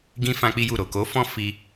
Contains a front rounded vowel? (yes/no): no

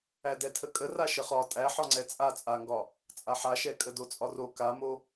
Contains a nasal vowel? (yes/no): no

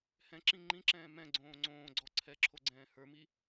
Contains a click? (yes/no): yes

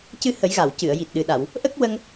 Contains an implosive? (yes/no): yes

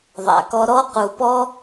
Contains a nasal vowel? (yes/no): no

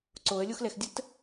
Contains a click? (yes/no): yes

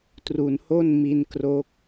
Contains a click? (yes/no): no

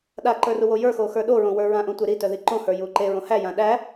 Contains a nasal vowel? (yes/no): yes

